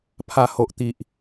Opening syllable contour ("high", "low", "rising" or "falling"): low